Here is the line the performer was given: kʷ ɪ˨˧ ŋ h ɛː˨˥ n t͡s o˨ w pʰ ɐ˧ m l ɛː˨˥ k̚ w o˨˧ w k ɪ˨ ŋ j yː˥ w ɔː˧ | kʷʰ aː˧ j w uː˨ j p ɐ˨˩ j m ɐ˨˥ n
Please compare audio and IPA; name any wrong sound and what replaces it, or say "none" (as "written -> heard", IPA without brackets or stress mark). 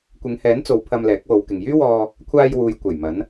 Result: p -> kʷ